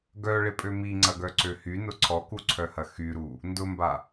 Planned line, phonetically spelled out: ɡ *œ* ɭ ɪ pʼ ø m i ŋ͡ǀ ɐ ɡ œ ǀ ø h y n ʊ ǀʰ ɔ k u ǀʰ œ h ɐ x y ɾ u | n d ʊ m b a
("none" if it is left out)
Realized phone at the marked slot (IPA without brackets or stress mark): œ